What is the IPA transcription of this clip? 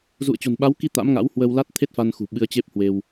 zṵ˧˨ə̯t͡ɕo̤˨˩nɓa˨˦wki˧ t̪a̰˧˥mŋa̰˧˥whwə˧w la˦˥t̚t̪ʰe˦˥t̚fa˧nxṳ˨˩ ɓɨ˧ə̯t͡ɕe˦˥p̚hwe˧w

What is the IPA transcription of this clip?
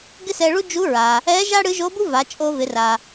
ɡɪ˥sɛ˧ɭu˥ d͡ʒu˧˥ɹa˩ | ɛ˧˥ʒa˥ ɽɨ˧˥ ʒo˧˥bu˥ va˩˧t͡ʃʼo˧vɪ˩˧ra˩

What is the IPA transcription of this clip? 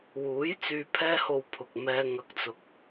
wuː˨˥jt͡syː˨pʰɛː˧ho˨w pʰʊ˨k̚mɛː˧ ŋɐ˧k̚t͡sʊ˧k̚

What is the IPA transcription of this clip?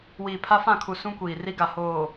wiː˨pʰa˦fã˦˨kʰu˨ sũ˦kʷiː˨ri˦ɡa˨ hoː˨

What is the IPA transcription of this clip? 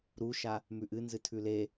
ɾuʃa | mʉʔɨnzɨ tʰʉle

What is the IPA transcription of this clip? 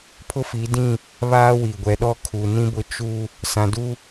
pʰʊ˦fi˨˦ dĩ˦˨ | βaː˦wi˨ɡʷɛ˨˦ɗɔ˦ kʰu˨nĩ˦bʊ˦ t͡ʃu˦ | sã˨du˦

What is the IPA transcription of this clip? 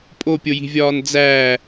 pʼopʲoji̤vʲɒːn d͡zæː

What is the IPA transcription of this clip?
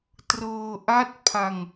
trɤː˧ʔa˦˥t̚pʰa˧ŋ

